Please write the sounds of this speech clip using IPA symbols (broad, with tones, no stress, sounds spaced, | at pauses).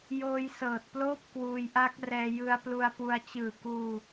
j oː˧ j s ɤː˨˩ t̚ p l oː˥˩ p̚ k w uː˧ j ʔ a˦˥ k̚ r ɛː˧ j ɯ˧ a̯ p l u˧ a̯ p u˧ a̯ t͡ɕ ɯː˨˩ k uː˧